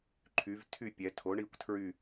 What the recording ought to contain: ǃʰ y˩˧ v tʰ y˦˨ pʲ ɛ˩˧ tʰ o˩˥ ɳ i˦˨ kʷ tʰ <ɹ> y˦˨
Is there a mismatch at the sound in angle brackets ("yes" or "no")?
no